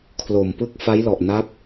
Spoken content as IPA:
kʰ l o˨˩ m p ɯ˥˩ k̚ f a˦˥ j l ɔ˨˩ ʔ n a˦˥ p̚

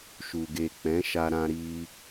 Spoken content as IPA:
ʃ u˨ ɡ e˨ k͡p ɛ̃˨˦ ʃ a˧ ɾ ã˧ ɾ i˧

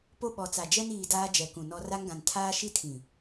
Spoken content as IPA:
p o˦ ɓ ɔ˨ t͡s a˨ d͡ʒ ɛ˦ n iː˨ d aː˦ d͡ʒ ɛ˨ k ũ˨ n ɔ˦ r a˦ ŋ ɡ ã˨ n tʰ aː˦ ʃ i˦ tʰ ĩ˨

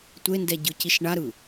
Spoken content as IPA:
tʷ e n d ɛ ɟ ɯ c i ʃ ɳ a ɾ ɯ

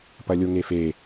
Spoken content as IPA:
p ɐ lʲ o ŋ e f e

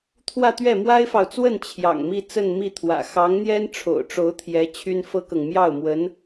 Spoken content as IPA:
t̪ʰ w ä˥˧ t̪ ɥ ɛ˥˩ m w a˥ ɪ̯ f ɑ˨ ʊ̯ t͡s w ə˥˩ n t͡ɕʰ j ɑ̰˨˩ ŋ m i˥˧ t͡s ə˥˧ n m i˥˩ t̪ʰ w ä̰˨˩ x ɑ˧˥ ŋ n̪ j ɛ˥ n ʈ͡ʂʰ o̰˨˩ ʊ̯ ʈ͡ʂ o˧˥ ʊ̯ t̪ʰ j ɛ˧˥ t͡ɕʰ y˥ n f ɤ˥ k ɤ˨ ŋ m j ɑ˥˩ ʊ̯ m w ə˧˥ n

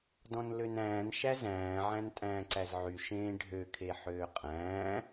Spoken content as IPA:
d ɔ̃ n l ø n æ̃ː n ʃ æ z æ̃ː ʕ æ̃ n tʼ æ̃ː ǀ æ z ʕ y ʃ ẽː ɖʱ ø kʰ e ħ øː qʼ æ̃ː

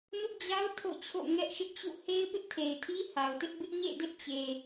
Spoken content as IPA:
n ʊ˦ ʔ d͡ʑ a˦ ʊ̯ tʰ o̰˦˨ t͡ɕʰ o̰˦˨ ŋ ɛ˦ ʔ ʃ ɪ˦ ʔ t͡ɕ ṵ˦˨ h e˦ ɪ̯ p ɪ˦ ʔ tʰ e˨ ɪ̯ tʰ i˦ h a˨ ʊ̯ t ɪ˦ ʔ b ɪ˦ ʔ ɲ ḛ˦˨ d ɪ˦ ʔ t͡ɕ e˨

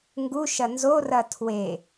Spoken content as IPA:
ŋ ɡ u ʃ ɐ n z o r ɐ tʰ w e

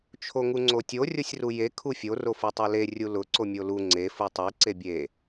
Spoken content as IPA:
t͡ʃʰ o ŋ u ŋ͡ǀ o tʲ o rʲ o sʲ r u j e kʰ u fʲ o r o f u tˤ u l e rʲ u l ʊ ǀ o mʲ o l u ŋ͡ǀ e f u tˤ e ǀ e bʲ e

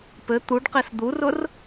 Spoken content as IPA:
p ɘ t̪ u ɖ q i s d̪ u r ʊ r

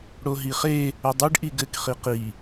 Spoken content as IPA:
ɽ o ɦ i χ e | ɘ dˤ ɘ ɖ ʔ i ɡ ɘ k χ i q i

